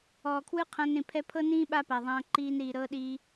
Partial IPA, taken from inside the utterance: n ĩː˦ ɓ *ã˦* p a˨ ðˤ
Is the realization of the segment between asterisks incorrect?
yes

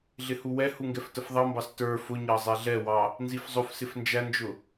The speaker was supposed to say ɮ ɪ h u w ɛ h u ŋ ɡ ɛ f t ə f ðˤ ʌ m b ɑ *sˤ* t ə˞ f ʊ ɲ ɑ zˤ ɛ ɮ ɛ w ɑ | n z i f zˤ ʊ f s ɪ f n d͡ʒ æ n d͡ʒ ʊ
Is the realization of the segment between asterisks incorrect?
yes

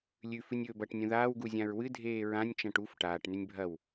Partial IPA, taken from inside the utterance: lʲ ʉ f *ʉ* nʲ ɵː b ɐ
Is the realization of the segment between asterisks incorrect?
yes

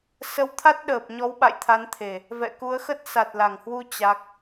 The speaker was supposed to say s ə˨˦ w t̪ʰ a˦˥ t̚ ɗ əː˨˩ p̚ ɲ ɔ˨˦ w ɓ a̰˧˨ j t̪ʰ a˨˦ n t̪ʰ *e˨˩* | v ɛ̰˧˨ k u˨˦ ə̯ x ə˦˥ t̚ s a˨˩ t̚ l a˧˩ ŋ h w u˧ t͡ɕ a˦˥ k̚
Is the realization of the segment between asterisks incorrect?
no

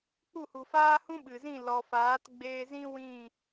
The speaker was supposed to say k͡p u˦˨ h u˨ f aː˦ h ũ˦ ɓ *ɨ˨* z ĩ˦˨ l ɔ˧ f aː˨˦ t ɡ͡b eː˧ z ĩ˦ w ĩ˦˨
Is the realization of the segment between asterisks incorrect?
no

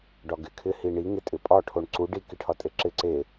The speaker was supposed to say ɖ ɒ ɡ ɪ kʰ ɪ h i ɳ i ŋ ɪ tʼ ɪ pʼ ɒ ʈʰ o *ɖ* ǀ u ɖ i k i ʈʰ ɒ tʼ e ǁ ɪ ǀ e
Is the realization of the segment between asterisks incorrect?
yes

